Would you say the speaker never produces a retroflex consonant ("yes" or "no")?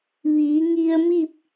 yes